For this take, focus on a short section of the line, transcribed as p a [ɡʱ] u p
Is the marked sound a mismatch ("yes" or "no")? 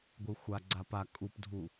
yes